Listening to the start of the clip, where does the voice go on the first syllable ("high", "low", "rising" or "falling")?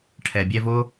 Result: low